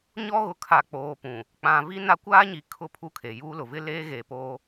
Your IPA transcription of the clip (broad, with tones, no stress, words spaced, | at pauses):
ɲɔ˦ɣʊ˨kʰa˨ k͡poː˨pũ˨ | k͡pã˨ vi˦na˦ kʷaː˦ɲi˨ kʰʊ˦˨pʰu˦˨kʰe˨ juː˦lʊ˨ vɪ˦leː˦ ɣeː˨poː˦